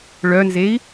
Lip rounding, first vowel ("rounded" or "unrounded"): rounded